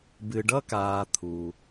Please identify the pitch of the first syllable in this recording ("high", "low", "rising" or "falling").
low